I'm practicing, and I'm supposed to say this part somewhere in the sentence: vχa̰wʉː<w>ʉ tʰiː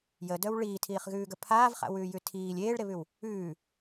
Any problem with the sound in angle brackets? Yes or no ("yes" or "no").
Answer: yes